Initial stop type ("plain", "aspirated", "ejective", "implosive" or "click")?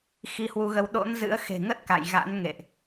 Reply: implosive